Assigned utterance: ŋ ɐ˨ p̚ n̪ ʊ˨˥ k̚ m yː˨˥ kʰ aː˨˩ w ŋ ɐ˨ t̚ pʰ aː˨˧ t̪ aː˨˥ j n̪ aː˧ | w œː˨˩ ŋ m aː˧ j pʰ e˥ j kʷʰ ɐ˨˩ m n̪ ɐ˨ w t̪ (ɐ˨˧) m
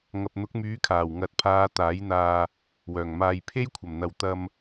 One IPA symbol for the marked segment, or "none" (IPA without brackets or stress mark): ɐ˧